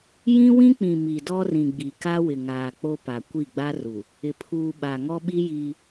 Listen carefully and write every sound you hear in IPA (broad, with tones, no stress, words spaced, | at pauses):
jĩ˦wĩ˦ k͡pĩ˨ mi˨dɔ˦rĩ˨ɡ͡bi˨ ka˦wɪ˨ŋaː˨ k͡po˦pa˨ kʷi˦˨ɡ͡ba˦ru˨ | ɪ˨pʰuː˨ ɓa˨ŋɔ˦ɓi˦ jiː˦